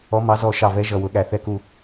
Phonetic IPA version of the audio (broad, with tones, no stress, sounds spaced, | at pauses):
ɔ˨˦ m ɑ˨˦ z ɔ˧˩ ʃ ɑ˧˩ v ɛ˨˦ ʒ ʌ˧˩ w ʊ˨˦ ɠ æ˧˩ θ ɛ˧˩ k u˧˩